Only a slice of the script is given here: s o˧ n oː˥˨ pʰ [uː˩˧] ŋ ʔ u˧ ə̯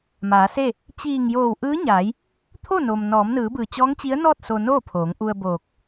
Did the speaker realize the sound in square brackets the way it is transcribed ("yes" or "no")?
no